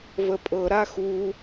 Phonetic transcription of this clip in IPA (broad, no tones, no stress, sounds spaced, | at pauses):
v ə pʼ ɤ ɾ a x u